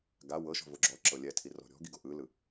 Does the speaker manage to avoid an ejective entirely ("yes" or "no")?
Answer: yes